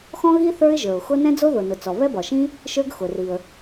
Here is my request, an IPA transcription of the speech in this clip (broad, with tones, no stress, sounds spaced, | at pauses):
x ɔ̃˥ ɣ i˥ θ ə˞˥ ɪ̯ ʒ ə˞˩ ʊ̯ x ʊ˥ n ɛ̃˥ d͡z o˥ ð ʊ˩ n ʊ˩ t͡s ɔ˩ β ɛ˥ b ɒ˩ ʃ ĩ˥ | ʃ ə˞˥ ɡ x ʊ˩ r i˩ ə̯